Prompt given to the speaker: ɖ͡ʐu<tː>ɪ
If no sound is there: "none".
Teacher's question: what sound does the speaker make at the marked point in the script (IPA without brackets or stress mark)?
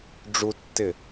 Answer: tː